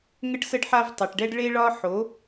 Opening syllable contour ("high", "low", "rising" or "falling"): high